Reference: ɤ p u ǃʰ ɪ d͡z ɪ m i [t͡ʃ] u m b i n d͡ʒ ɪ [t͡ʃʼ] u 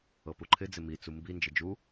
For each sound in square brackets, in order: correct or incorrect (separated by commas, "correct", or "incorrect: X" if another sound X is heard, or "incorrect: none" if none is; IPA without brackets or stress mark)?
incorrect: t͡s, incorrect: d͡ʒ